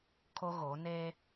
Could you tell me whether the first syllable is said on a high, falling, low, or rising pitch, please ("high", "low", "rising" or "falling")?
high